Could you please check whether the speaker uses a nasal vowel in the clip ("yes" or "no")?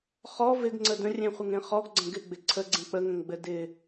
yes